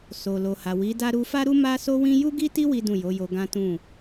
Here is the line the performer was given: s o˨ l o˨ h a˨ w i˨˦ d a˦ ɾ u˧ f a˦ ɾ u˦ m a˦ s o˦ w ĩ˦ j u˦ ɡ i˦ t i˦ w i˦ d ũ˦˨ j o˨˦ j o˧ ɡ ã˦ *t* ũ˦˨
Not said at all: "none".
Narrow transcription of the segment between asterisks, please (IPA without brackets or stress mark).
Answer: t